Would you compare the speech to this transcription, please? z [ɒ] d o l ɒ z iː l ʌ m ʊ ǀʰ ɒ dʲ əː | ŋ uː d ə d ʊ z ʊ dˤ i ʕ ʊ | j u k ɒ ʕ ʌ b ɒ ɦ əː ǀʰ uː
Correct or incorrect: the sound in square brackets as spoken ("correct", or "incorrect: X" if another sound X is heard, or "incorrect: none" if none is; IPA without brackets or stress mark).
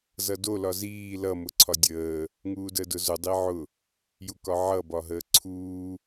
incorrect: ʌ